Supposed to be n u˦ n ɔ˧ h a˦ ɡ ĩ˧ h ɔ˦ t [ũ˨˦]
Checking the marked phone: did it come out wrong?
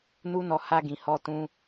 yes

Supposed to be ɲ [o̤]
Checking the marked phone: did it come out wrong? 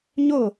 yes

